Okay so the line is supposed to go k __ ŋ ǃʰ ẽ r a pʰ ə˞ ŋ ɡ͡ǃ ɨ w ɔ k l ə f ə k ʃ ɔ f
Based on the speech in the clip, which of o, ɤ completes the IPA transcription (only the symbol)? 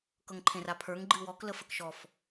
ɤ